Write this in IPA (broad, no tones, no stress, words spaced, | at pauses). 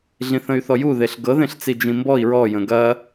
ɮĩθə̃y̯θɔju ðeɬɡɤðẽɬt͡si d͡ʒĩmbɔi̯ ɹɔjə̃ ɡɐ